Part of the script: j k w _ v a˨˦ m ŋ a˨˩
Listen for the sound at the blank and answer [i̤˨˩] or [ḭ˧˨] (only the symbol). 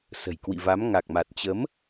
ḭ˧˨